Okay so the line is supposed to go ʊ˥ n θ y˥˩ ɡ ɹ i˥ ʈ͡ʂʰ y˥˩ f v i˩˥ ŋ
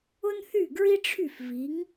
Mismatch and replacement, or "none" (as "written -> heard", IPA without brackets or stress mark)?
none